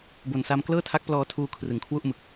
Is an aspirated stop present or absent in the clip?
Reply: present